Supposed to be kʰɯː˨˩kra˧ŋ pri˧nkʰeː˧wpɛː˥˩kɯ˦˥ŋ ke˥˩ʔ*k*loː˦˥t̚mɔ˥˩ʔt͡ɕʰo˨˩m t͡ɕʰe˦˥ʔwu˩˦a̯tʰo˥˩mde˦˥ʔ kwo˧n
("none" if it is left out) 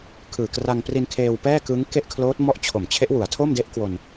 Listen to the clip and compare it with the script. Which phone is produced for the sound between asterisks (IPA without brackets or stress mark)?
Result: kʰ